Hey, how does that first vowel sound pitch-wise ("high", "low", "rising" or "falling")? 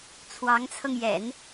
rising